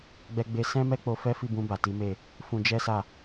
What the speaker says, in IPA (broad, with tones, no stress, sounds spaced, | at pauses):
ɡ͡b ɛ˦ ɡ͡b e˦ s ɛ̃˦ m ɛ˦ k͡p o˧ f ɛ˦ f i˦˨ b ũ˧ b a˨ t i˨˦ m e˦˨ | f ũ˧ d͡ʒ ɛ˦ s a˦˨